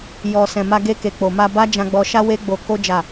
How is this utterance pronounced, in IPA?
j ɔ˨ s ɛ̃˨ m a˧ ɡ e˧ k e˨ k͡p o˨ m a˧ b a˦ d͡ʒ ã˧ ɡ͡b ɔ˧ ʃ a˦ w e˦ ɡ͡b o˧ k o˦ d͡ʒ a˦˨

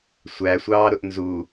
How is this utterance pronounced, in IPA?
sʷ æ sʷ ɑː ɾ ʊ ʔ n z u

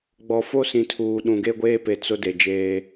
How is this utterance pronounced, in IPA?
ɡ͡b ɔ˨ f o˦ s ĩ˨ tʰ uː˨ ɗ ũ˨ ɡ e˦ ɡʷ eː˦ p e˨ t͡s ʊ˦ d e˨ d͡ʒ eː˦

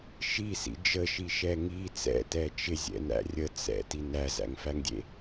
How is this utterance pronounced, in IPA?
ʃ i s ḭ d͡ʒ ə ʃ i ʃ ɛ ŋ i t͡s ɛ̰ t ɛ t͡ʃ ɪ zʲ ɛ̰ n æ̰ rʲ ə t͡s ɛ̰ t i n æ z æ̰ ŋ f æ ŋ dʲ ḛ

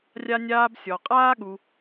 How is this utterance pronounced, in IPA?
rʲ a˥ nʲ aː˥ b sʲ ɔ˧ qʼ aː˥ ɠ u˧

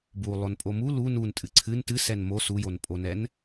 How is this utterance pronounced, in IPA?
b u lˠ o n pʼ o m u l u n u n tʼ ɨ ǀʰ ɨ n t ɨ s ɛ n m o s u j o n pʼ o n ɛ n

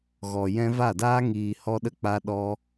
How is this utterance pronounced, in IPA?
ɣ ɔ˨ j ɛ̃˧ v a˦˨ d aː˦ ŋ iː˨ h ɔ˧ ɗ ə˧ k͡p a˧ ɗ ɔ˧

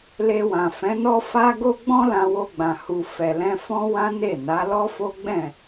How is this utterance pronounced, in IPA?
l e˧ w ã˨ f ɛ̃˨˦ n ɔ˦ f a˦ ɡ o˦ ɡ͡b ɔ̃˦ l ã˧ w o˧ ɡ͡b ã˨ h u˨ f ɛ˨ l ɛ̃˧ f ɔ̃˦ w ã˦ n e˦˨ n a˨˦ l ɔ˦ f o˦ ɡ͡b ɛ̃˦˨

